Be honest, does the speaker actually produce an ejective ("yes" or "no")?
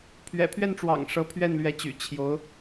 no